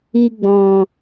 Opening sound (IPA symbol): i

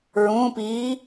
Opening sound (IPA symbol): ɹ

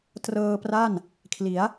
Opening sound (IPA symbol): t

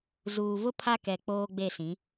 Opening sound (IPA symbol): z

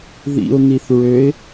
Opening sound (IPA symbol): ð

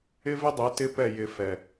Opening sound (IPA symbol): ɪ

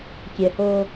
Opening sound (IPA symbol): kʲ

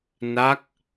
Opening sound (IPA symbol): n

